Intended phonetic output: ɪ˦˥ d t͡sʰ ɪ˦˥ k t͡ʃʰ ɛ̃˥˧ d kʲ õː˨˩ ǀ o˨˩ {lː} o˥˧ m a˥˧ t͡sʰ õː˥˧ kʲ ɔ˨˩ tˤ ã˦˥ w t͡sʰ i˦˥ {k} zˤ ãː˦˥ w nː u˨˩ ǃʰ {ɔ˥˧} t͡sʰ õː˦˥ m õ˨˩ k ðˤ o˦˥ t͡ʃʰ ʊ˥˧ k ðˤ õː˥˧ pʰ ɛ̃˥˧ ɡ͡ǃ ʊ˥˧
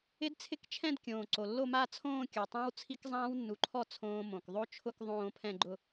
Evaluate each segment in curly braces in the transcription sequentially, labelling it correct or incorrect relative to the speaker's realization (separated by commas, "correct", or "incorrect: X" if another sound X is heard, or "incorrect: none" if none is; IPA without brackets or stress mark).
correct, correct, correct